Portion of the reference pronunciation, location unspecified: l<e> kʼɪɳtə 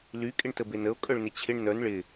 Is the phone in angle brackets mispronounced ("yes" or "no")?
yes